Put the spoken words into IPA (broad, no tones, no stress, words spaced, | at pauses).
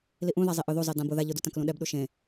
liʔũ ðazˤiʔʊ ðuzˤe dãbʊ ða ʎʊdu tãklũɗɛbɗu ʃẽ